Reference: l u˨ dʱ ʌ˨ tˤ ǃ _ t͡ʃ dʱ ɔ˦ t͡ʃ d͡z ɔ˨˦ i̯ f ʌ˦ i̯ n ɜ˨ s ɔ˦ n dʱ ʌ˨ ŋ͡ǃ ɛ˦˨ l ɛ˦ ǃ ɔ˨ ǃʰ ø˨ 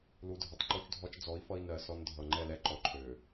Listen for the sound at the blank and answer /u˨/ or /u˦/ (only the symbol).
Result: u˦